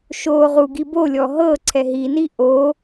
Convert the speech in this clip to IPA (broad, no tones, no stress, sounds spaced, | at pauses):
ʃ o ʁ u ɡ i b o lʲ ɔ ɦ ɤ ǀʰ ɛ ɦ i n i ʔ o